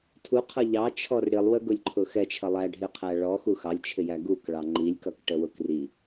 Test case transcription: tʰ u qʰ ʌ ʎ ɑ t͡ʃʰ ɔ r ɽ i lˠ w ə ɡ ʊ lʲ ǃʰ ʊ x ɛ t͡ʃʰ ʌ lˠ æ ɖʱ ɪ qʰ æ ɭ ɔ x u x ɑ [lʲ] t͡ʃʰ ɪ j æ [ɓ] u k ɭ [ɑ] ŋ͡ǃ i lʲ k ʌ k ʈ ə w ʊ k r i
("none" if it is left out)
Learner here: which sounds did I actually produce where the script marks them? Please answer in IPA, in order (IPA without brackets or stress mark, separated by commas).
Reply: lʲ, ɡ, ɑ